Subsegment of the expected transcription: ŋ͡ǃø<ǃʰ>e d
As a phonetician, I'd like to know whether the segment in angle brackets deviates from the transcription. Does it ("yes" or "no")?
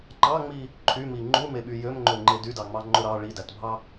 yes